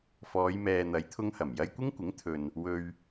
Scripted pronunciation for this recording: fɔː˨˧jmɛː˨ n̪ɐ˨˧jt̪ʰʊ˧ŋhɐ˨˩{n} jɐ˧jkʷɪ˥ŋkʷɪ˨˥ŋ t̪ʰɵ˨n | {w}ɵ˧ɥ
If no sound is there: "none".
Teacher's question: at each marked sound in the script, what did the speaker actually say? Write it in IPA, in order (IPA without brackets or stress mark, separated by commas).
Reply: m, w